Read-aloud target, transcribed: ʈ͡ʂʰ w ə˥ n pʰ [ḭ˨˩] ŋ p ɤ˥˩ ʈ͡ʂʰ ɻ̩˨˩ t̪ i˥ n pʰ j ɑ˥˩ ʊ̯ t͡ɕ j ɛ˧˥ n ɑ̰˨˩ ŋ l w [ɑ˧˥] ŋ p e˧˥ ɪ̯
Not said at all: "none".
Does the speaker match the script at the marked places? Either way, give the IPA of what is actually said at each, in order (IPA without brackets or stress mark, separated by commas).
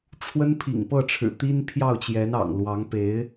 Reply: ḭ˨˩, ɑ˧˥